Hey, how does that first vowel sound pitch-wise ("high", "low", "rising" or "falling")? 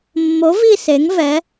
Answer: rising